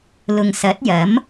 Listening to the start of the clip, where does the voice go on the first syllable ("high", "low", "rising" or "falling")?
low